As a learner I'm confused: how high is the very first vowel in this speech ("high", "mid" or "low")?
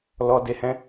mid